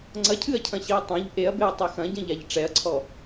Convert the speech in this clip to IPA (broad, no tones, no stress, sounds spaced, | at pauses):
ŋ͡ǀ ɐ cʰ ɨ ɐ̯ cʰ ɐ̃ ɕ i ɐ̯ tˤ õ ʎ ʔ e ɐ̯ b e ɐ̯ tˤ i x ɐ̃ ɟ ɐ̃ ʎ a ʎ ʈ͡ʂ ɛ ɐ̯ ǀʰ ɔ